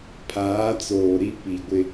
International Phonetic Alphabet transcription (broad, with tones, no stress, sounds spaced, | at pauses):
pʰ aː˨˦ t͡s oː˨ ɾ i˦ p i˨ ɡʷ ɪ˦